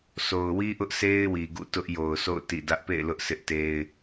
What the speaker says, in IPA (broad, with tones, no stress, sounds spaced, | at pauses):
sʰ o˨ ʊ̯ w i˦ ʔ ʊ˦ ʔ s e˦ ɪ̯ w i˨ ɡ ṵ˦˨ t ʊ˦ ʔ j o˨ ʊ̯ s o̰˦˨ ʊ̯ t ḭ˦˨ d ä˦ ʔ p ḛ˦˨ ɪ̯ l ʊ˦ ʔ s ɪ˦ ʔ t e˦ ɪ̯